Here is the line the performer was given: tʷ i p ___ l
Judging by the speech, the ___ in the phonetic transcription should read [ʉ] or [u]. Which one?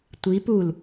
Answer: u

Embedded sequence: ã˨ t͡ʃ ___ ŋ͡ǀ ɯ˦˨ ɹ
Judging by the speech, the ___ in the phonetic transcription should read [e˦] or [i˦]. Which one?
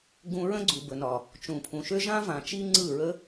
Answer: i˦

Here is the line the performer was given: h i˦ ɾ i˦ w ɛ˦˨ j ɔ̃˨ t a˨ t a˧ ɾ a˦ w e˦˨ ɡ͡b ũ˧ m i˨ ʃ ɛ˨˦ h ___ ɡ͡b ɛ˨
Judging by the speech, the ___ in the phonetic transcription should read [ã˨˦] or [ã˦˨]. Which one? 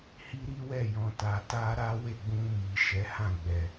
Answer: ã˦˨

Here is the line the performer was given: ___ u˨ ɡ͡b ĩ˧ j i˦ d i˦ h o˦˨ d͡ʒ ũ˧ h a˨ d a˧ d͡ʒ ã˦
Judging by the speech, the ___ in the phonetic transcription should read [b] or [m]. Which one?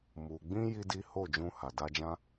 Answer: m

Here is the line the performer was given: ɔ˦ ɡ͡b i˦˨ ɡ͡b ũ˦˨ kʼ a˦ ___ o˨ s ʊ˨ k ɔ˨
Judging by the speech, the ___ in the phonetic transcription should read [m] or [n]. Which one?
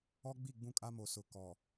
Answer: m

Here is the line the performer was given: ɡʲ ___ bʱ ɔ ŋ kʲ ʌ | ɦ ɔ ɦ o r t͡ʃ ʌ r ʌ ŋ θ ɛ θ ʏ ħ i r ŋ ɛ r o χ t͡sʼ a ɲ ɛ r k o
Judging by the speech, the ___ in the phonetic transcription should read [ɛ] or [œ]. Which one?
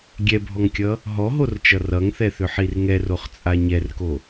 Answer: ɛ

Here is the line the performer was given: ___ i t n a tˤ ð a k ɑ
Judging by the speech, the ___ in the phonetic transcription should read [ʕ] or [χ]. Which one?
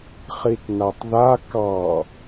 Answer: χ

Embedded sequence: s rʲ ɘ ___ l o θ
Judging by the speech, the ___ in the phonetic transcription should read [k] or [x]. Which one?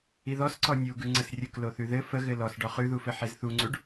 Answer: k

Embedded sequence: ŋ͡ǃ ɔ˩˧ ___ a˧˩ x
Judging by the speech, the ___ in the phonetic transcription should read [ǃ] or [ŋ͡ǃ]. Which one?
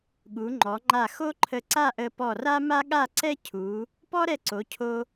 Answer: ŋ͡ǃ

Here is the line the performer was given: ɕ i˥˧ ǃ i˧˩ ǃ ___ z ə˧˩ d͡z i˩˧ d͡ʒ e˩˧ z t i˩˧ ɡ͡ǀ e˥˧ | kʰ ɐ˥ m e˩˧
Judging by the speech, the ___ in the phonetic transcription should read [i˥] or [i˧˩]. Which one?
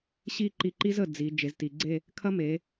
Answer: i˥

